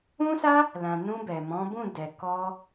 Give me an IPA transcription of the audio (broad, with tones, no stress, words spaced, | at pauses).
ũ˦sa˦ | lã˨nũ˧ bɛ˨ mɔ̃˨˦bũ˦˨dɛ˨ kɔ˧